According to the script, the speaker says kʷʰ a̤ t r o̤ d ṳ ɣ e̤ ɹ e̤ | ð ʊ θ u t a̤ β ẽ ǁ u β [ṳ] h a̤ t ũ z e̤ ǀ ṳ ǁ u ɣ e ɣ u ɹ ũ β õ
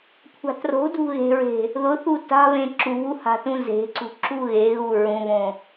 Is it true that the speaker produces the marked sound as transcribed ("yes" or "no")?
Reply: no